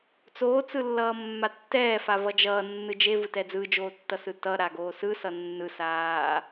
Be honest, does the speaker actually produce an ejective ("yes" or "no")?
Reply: no